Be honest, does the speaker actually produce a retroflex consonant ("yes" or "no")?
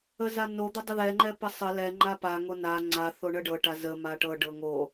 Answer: yes